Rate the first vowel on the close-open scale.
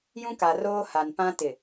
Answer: close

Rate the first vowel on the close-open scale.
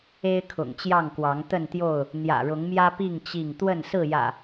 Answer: mid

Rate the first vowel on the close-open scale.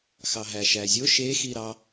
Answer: open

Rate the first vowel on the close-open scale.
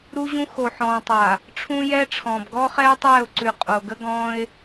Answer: close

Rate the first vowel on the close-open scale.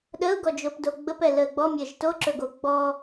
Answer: mid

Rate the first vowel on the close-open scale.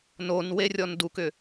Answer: mid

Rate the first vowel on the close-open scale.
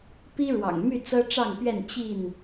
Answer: close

